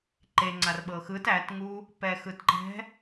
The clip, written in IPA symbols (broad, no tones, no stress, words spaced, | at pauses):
ǃe ŋ͡ǀarɓɤxɯt ætŋu | pɛxɯtǃɛ̤